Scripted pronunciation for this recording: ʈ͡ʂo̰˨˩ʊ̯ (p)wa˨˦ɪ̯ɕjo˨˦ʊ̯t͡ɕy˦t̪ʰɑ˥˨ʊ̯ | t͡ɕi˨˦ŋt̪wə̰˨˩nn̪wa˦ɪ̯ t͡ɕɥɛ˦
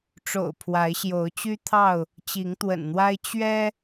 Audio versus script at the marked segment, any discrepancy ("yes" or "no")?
yes